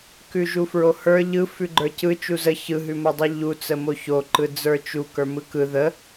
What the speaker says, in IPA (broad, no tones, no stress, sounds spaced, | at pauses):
k ʉ ʒ u f ɹ o h ə˞ ʎ ɯ f ʉ ɡ͡ǃ ə˞ c ɯ t͡ʃ u z ə ç ɯ ɦ ʉ m o dˤ ɯ ʎ u t͡s ə m o ç o ǃ ɯ d͡z ə˞ t͡ʃ u k ə˞ m ɯ k ɯ ð ə